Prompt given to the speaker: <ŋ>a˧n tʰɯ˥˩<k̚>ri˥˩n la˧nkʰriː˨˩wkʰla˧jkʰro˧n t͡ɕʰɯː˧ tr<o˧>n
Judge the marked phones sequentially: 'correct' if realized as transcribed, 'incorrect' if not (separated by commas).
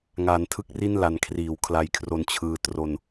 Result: correct, correct, correct